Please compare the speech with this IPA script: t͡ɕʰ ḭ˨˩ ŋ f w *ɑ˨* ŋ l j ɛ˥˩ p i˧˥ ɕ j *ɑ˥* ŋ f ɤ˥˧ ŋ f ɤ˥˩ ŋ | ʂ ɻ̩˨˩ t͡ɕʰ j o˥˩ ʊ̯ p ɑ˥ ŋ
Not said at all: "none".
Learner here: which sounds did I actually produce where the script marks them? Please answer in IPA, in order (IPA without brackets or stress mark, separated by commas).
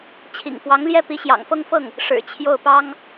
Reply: ɑ˧˥, ɑ̰˨˩